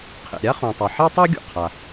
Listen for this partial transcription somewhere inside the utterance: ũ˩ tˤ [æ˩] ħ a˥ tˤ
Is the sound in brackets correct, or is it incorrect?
incorrect